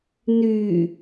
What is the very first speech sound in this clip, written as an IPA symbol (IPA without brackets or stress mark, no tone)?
n